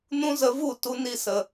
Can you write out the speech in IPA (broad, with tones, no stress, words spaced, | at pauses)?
nũ˦zə˧vu˦˨ tu˧ ni˧sə˨